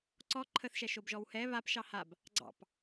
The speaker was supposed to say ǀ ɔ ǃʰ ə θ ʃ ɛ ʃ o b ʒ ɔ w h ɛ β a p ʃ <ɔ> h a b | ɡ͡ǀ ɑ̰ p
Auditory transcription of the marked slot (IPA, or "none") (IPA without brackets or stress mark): ɑ